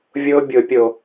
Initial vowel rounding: rounded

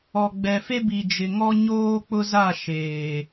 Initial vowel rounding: rounded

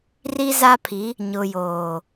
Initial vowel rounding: unrounded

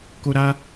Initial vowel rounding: rounded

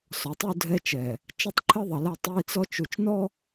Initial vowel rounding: rounded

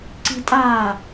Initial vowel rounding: unrounded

